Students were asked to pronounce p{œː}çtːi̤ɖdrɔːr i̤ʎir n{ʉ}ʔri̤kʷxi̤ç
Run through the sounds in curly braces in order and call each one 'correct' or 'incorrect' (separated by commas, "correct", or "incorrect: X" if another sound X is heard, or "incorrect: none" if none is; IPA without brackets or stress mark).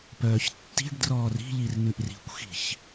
correct, correct